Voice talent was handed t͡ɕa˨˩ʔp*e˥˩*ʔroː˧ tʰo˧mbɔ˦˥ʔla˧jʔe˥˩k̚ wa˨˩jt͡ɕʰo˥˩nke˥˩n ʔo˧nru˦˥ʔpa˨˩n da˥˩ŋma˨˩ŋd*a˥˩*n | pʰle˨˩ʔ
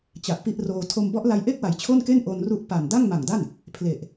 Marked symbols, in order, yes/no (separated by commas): no, yes